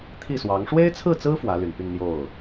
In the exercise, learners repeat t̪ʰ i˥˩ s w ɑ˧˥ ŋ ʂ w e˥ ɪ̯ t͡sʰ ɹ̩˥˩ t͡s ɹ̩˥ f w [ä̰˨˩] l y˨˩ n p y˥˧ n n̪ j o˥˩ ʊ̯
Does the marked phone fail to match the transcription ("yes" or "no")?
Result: yes